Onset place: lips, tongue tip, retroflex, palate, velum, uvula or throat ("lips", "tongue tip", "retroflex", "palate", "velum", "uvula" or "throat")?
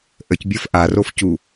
throat